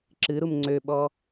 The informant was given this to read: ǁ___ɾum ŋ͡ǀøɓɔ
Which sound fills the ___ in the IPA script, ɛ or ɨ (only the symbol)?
ɨ